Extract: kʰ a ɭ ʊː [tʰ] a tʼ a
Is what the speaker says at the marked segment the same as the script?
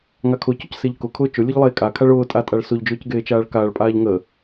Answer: no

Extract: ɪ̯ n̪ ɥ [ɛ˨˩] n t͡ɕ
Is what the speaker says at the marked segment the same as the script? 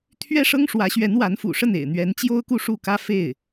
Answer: no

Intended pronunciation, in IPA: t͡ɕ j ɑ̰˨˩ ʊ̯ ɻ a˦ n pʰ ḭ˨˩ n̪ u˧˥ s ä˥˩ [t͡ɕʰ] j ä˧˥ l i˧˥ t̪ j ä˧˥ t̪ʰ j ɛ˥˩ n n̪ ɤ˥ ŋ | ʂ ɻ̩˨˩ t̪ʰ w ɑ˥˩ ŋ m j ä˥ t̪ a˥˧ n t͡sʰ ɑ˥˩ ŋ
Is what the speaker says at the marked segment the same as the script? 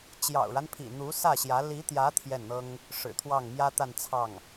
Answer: no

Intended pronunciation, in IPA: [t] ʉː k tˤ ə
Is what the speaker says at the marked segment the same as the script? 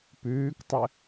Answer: no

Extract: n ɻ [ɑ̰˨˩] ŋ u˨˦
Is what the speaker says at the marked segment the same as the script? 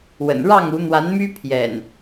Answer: no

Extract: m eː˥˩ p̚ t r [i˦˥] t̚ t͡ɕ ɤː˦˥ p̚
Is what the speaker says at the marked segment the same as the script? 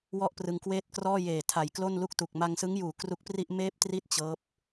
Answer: no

